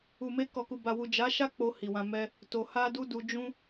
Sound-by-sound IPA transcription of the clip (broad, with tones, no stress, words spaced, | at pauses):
u˨me˧ kɔ˨ku˨ba˨wu˨ d͡ʒa˨˦ʃa˦ k͡po˧ hi˨wã˧mɛ˦ | to˨ ha˧du˧ du˧ d͡ʒũ˦